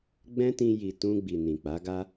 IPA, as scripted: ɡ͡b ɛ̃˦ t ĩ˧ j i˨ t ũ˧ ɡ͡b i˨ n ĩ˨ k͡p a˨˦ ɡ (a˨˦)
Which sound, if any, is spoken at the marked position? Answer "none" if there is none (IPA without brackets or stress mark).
a˦